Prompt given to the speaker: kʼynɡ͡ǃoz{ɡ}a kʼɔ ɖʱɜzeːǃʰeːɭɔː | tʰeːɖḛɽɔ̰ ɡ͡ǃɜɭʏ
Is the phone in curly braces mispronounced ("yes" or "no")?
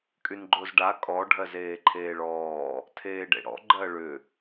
yes